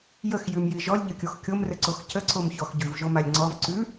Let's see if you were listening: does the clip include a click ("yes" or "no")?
yes